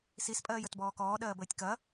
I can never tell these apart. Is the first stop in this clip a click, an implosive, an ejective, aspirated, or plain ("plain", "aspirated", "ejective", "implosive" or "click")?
ejective